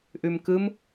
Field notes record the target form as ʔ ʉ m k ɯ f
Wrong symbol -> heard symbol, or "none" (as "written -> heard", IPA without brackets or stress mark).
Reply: f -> m